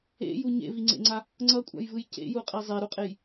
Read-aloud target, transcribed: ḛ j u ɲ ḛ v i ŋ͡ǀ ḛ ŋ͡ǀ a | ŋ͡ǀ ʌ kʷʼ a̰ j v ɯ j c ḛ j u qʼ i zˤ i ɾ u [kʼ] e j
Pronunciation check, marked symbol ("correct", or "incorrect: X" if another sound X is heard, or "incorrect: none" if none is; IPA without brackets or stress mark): incorrect: qʼ